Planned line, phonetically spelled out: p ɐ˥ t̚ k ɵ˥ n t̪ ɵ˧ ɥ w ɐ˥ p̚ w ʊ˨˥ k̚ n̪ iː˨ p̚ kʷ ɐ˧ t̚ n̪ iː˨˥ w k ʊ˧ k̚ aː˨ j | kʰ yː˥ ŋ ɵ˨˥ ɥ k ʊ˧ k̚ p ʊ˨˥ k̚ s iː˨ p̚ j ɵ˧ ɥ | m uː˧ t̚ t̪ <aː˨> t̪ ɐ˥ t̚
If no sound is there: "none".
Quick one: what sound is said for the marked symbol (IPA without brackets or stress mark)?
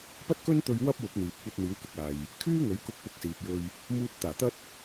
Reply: aː˨˩